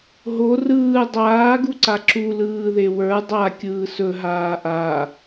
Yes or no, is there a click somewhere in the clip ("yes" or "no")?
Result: yes